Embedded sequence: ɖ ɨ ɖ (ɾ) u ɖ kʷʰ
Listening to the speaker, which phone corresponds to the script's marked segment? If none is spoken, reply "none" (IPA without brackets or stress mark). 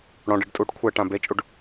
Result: tʼ